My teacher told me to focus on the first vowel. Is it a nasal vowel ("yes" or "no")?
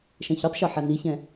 yes